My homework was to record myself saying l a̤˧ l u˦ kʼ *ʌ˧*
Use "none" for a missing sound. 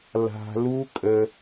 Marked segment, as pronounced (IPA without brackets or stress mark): ə˧